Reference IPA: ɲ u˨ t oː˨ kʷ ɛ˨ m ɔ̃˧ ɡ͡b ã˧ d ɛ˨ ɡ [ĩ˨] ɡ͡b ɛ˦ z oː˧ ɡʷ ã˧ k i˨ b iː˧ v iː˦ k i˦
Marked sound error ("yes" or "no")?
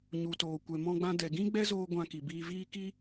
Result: yes